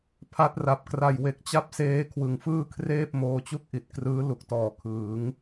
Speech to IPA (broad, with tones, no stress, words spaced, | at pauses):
pʰa˦˥t̚ra˨˩p̚kra˧j we˨˩k̚t͡ɕa˥˩p̚seː˦˥ kʰwɯ˨˩ŋfɯː˥˩kʰreː˥˩p̚ moː˧t͡ɕu˥˩k̚ʔi˨˩t̚krɯː˦˥ lu˨˩k̚tɔː˨˩kʰɯː˩˦ŋ